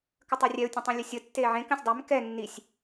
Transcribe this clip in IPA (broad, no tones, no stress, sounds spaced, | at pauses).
k ə tˤ ɛ rʲ ɛ ʊ̯ tʲ ə̃ tˤ ĩ lʲ ə sʲ ə tː e ʕ ẽ k ə̃ sʲ dˤ ɛ m k ɛ nː i sʲ